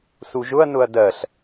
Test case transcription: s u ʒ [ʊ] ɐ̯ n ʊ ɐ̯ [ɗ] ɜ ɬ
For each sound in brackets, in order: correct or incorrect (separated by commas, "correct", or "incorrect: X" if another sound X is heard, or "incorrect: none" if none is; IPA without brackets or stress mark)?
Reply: correct, incorrect: d